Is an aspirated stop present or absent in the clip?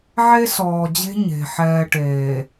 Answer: absent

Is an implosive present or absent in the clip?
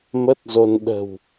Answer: present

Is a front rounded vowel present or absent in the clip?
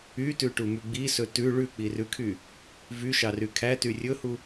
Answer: present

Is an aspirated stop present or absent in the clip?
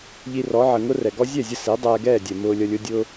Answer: absent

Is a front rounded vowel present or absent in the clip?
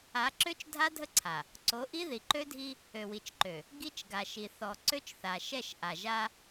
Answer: present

